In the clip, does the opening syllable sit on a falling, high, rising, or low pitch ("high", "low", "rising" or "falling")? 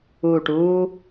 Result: low